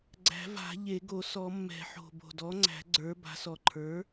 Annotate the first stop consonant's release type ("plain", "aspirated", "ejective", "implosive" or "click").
click